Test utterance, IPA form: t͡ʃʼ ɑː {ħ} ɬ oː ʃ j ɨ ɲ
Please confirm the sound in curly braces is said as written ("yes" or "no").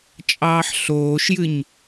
yes